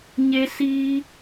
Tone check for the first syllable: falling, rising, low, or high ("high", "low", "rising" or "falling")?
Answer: high